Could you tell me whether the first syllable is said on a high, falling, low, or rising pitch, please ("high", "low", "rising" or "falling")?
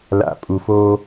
low